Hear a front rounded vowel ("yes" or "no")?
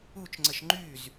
yes